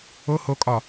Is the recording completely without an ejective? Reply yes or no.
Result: no